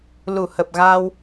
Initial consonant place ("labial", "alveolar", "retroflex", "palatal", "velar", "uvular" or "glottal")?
alveolar